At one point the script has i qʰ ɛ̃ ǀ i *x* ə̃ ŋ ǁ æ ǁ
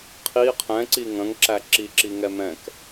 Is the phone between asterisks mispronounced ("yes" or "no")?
yes